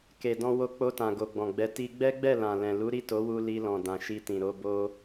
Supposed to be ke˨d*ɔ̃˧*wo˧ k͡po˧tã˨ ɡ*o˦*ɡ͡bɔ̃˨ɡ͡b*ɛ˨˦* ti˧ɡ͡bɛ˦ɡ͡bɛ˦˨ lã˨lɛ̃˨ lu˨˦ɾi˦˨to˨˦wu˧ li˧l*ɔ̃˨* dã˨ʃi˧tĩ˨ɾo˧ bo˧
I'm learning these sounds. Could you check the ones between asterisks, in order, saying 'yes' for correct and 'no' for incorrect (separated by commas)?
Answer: yes, no, yes, yes